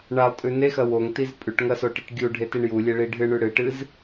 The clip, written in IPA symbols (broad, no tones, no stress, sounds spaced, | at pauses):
ɳ a lˠ tʼ ʉ n e x ɐ w o ŋ t i z pʼ ʉ ʈ ŋ ɐ s o ʈ ɨ ʈ ɡʲ u ɖʱ e t i ɳ j u lʲ e ɭ i ɖʱ ɨ ɳ ʉ ɽ ɨ ʈ ɨ z